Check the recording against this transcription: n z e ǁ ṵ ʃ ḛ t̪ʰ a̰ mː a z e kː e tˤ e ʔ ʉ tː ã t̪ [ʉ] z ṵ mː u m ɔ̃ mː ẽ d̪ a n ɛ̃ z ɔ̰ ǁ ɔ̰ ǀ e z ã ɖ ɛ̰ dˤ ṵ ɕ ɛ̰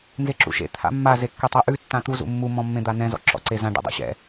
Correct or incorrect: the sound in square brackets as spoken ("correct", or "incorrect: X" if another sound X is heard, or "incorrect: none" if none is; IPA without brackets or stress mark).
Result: incorrect: u